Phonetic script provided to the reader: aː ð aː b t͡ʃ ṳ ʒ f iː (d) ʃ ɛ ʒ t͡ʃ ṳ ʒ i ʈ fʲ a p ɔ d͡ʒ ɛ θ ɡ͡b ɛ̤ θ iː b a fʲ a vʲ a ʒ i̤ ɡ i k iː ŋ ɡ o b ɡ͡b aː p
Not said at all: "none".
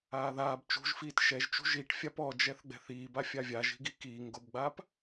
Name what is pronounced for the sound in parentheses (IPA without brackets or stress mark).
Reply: t